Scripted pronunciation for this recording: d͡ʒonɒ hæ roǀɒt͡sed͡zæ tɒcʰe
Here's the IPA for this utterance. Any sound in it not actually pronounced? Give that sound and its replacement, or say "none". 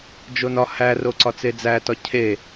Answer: none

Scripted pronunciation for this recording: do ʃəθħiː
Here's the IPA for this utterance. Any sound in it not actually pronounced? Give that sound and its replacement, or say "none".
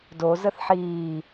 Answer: ʃ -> z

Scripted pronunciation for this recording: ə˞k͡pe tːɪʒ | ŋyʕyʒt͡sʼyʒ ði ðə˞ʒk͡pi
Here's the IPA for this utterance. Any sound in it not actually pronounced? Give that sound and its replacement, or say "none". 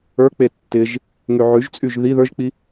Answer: none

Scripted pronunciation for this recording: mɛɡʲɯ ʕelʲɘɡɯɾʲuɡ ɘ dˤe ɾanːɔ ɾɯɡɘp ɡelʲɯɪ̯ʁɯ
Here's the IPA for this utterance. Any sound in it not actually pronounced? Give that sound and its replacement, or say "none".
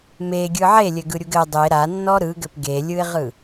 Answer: ɛ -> e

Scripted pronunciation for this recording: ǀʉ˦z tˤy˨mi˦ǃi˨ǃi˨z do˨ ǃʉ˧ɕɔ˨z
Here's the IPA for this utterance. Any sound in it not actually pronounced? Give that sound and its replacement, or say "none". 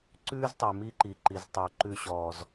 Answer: d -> tˤ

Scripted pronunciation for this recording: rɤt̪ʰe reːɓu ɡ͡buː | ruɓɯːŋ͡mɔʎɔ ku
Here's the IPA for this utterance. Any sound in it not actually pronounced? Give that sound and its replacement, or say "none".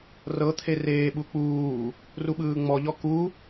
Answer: ɡ͡b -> k͡p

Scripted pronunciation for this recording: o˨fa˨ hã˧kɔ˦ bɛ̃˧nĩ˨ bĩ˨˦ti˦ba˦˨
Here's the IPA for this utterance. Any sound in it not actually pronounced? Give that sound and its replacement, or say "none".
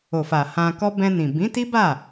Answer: none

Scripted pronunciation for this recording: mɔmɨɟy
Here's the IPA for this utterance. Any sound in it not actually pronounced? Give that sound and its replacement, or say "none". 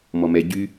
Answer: ɨ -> ɛ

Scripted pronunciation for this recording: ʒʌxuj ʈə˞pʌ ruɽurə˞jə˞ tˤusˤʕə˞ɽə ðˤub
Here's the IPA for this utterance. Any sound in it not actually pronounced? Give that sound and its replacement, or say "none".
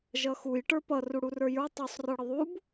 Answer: ʕ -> r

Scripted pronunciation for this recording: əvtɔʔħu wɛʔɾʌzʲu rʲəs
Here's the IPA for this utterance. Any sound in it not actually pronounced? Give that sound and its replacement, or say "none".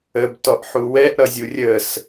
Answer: v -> b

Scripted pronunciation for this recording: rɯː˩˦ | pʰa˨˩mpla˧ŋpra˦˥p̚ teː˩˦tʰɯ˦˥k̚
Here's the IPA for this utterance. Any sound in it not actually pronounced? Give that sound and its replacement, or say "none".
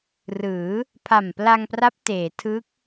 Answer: none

